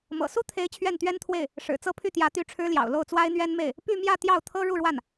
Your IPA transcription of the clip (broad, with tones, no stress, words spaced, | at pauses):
mɤ̰˨˩su˥t̪ʰe˧˥ɪ̯ t͡ɕʰɥɛ˥˩nt̪ɥɛ˥nt̪ʰwe˥˩ɪ̯ | ʂɻ̩˨˩t͡sɤ˥˧pʰy˥˩t̪jä˧˥ t̪y˥˩ʈ͡ʂʰɻ̩˥ljɑ̰˨˩ʊ̯ lo˥˩ʊ̯t͡swa˥ɪ̯n̪ɥɛ˥nme˥˩ɪ̯ | py˥˧mjä˥˧ t̪jɑ˥˩ʊ̯t̪ʰɤ˥ ɻu˥˧ɻwa˥˩n